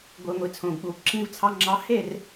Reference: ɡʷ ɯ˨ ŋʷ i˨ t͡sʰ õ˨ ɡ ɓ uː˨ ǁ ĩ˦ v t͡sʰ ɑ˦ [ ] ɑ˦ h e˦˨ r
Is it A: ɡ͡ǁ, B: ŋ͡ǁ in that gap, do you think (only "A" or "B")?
B